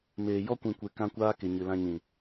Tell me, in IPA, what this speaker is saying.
m eː˨ j ɔ˧ kʷ ĩ˨ kʷ e˨ k ã˧ kʷ aː˧ k e˨ ɲ ɨ˨ l ã˧ ɲ ĩ˨

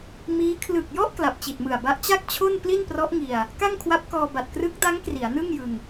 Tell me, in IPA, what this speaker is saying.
m iː˦˥ kʰ l ɯ˨˩ k̚ j ɔ˥˩ ʔ k l a˨˩ p̚ t͡ɕ i˨˩ t̚ m ɯ˨˩ a̯ b a˦˥ ʔ t͡ɕ a˥˩ k̚ t͡ɕʰ o˥˩ n p l i˥˩ n p r ɔ˦˥ ʔ ŋ i˧ a̯ | k a˥˩ ŋ kʰ w a˦˥ p̚ k ɔː˧ b a˨˩ t̚ k r ɯ˦˥ k̚ d a˦˥ ŋ k r i˩˦ a̯ n ɯ˥˩ ŋ j ɯ˧ ŋ

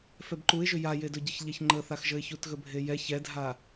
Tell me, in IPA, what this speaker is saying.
f ɛ b ǃ u ɪ̯ ʒ ʏ j a j e d ɵ ɟ ə ç ʎ ɛ ç ŋ͡ǃ ə θ a x ʒ ə ɪ̯ ç u t ɣ ə bʱ e j ɛ ç ɛ dʱ a

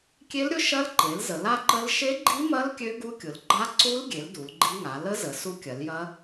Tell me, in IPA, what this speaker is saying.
kʲ e˦˥ l ɾʲ ʊ˦˥ ʃ ɐ˦˥ l ǃ e˩˧ l z ə˩˧ l a˦˥ ǃ ə˦˥ l ʃ e˦˥ ɡ͡ǃ i˦˥ m ɐ˦˥ l kʲ ø˦˥ ɡ u˦˥ kʲ ʊ˩˧ l ɡ͡ǃ a˦˥ ǀ u˦˥ l ɡʲ e˩˧ l d u˩˧ l ɡ͡ǃ i˦˥ ŋ a˩˧ l ə˦˥ z ə˩˧ s u˦˥ kʲ ɐ˩˧ l j ɐ˦˥

